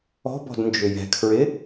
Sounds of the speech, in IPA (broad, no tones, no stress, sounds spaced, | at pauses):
ɔ̤ b ɔ̤ d n d͡ʒ ʏ j ɛ̤ kʰ ɹ ɪ